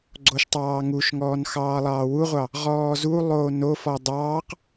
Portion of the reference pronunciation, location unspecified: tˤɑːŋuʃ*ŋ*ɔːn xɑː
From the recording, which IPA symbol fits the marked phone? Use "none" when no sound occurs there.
ŋ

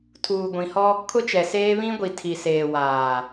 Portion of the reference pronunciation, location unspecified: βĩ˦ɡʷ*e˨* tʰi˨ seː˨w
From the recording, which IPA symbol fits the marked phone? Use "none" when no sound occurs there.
i˨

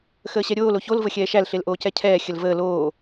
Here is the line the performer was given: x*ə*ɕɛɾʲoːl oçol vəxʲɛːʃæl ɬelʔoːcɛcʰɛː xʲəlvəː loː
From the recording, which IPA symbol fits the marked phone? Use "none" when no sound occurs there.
əː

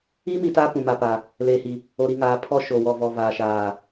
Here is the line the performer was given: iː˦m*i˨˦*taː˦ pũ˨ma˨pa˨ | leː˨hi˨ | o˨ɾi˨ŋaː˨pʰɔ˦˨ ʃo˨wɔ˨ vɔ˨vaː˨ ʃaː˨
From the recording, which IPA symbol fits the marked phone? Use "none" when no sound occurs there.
i˨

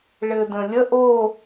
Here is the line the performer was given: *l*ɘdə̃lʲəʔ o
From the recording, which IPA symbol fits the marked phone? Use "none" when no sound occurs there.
ɭ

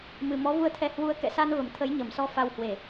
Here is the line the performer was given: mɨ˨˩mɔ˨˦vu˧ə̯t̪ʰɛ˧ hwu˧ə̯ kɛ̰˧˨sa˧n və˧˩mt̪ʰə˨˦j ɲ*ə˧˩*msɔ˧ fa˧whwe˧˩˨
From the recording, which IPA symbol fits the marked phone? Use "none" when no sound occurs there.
ə˧˩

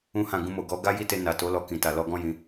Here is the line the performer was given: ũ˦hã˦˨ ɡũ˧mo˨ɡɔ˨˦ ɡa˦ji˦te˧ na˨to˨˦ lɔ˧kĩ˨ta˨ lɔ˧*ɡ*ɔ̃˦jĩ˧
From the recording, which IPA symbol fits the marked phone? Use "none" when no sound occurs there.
ɡ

